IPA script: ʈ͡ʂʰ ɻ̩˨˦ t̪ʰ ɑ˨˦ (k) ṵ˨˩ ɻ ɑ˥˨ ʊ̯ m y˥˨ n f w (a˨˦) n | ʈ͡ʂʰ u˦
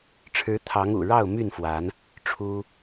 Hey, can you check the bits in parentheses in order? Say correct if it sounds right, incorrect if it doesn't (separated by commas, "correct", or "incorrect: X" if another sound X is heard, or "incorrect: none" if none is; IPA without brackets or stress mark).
incorrect: ŋ, correct